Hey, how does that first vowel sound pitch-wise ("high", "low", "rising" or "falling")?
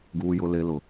high